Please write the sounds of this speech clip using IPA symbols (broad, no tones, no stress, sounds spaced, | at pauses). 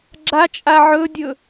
ɡ͡ǁ a t͡ʃʼ a ʕ ɵ dʲ ɵ